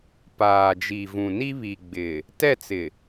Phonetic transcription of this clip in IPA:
p aː˨ d͡ʒ i˨ v ũ˨ n i˦ β i˨ ɡ͡b ɪ˨ | t ɛ˦˨ t͡s ɪ˨

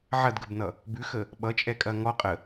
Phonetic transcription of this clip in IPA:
ʕ ɐ d ɡ ə b n ʌ | b ʉ x ə | ɓ ʌ t͡ʃʼ ɛ kʼ ɐ ŋ ɔ qʼ ə

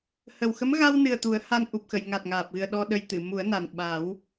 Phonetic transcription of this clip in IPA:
h ə˨˩ w x ə˧˥ m ɣ a˧ w n ɨ˨˩ ə̯ t̪ u˨˩˦ ə̯ h a˧ n ʔ u˨˩ p̚ x ə˨˩˨ j ŋ a˨˩ t̚ ŋ aː˨˩ p̚ ɣ ɨ˨˩ ə̯ ɗ ɔ˧ ɗ ə˧ j t̪ ɨ˨˩˨ m u˨˩˦ ə̯ n a˨˩ n ɓ a˨˩˦ w

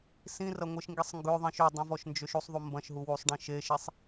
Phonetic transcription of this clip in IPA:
s ĩ r ɐ ŋʷ e ʃ ŋ ɡ i sˤ ŋ ɡ ø ðˤ ĩ ʃ ø dˤ ĩ v ɔ ʃ n d͡ʒ ø ʃ u sˤ ðˤ u m b ɐ̃ ʃ ɦ u w u sˤ ɖ ĩ ʃ e ʃ i sˤ

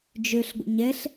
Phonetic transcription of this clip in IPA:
d͡ʒ ø ɬ ɡʷ ə̰ ɲ ɛ ɬ

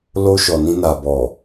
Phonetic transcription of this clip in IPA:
l o˧ ʃ ɔ˨ n ĩ˧ n a˨ b ɔ˨

